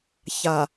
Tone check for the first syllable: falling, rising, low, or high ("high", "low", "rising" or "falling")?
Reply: low